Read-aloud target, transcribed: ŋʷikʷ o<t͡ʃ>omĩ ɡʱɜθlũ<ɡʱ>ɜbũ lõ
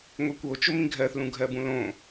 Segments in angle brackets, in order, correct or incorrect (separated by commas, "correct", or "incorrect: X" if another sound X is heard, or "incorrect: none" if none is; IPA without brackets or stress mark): correct, correct